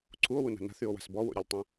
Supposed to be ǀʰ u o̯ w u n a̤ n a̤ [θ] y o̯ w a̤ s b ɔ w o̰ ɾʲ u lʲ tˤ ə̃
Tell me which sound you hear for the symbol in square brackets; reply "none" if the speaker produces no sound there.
θ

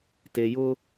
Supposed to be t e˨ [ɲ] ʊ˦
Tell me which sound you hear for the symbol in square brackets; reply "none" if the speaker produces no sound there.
j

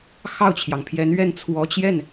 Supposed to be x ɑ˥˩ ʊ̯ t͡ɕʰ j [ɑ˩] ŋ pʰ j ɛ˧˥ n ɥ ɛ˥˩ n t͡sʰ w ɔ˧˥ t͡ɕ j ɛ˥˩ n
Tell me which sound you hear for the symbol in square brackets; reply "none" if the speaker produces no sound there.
ɑ˩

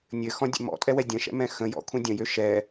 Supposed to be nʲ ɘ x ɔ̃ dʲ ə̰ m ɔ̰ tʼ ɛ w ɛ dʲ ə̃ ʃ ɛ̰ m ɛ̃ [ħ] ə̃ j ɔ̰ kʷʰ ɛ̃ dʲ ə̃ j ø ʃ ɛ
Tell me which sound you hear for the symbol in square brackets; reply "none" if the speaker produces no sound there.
x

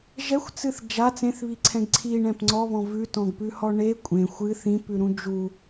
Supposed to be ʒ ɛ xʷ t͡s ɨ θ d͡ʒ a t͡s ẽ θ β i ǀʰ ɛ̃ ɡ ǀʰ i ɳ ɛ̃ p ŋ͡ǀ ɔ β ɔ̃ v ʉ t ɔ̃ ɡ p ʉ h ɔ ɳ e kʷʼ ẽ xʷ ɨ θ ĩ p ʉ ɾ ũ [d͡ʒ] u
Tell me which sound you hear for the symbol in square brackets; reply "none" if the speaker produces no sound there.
d͡ʒ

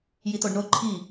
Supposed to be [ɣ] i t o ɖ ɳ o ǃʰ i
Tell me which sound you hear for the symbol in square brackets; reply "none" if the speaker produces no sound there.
j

